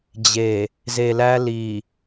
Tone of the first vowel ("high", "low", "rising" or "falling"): low